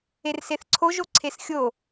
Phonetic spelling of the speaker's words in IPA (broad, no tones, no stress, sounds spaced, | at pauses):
e r s e θ ǀʰ o ʒ o ǀʰ e s xʲ o